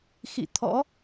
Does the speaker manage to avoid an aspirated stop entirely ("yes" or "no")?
no